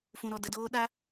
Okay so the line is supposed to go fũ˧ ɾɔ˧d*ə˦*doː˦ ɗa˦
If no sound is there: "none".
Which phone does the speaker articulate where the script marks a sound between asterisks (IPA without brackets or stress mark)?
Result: ə˧